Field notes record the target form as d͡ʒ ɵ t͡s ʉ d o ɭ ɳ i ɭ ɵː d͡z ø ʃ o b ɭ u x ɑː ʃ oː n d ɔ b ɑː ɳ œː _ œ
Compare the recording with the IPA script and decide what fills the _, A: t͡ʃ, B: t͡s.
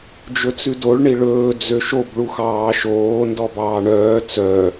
B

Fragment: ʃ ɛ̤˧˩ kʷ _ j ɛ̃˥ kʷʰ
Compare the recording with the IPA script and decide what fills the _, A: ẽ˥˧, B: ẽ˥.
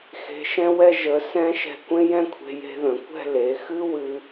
B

